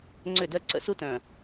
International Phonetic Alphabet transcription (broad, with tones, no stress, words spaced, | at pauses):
ŋ͡ǀʏ˦˨dɜ˦ ǀə̰˦su˦tœ̃˨